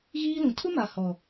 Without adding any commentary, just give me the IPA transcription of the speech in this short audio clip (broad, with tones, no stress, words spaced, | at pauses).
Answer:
ɣiː˦lũ˨ tʰʊ˦ma˨ hɔ˨